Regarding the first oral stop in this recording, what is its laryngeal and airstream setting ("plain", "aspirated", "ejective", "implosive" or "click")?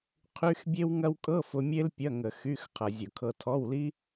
aspirated